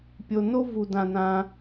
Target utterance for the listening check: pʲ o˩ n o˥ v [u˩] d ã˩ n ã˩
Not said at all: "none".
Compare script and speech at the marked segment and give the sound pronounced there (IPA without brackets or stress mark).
u˩